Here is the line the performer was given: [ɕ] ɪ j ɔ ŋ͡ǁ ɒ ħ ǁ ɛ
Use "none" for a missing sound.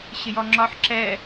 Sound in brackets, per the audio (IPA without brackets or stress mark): ɕ